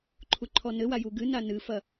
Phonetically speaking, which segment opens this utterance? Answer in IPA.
ǃʰ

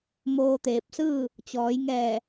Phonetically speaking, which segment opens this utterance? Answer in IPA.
m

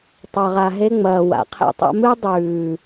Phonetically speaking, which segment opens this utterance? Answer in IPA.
tˤ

